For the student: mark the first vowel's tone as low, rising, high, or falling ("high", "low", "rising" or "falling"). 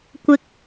low